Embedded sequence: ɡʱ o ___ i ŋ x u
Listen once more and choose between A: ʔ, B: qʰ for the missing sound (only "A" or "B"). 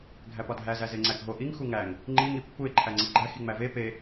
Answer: A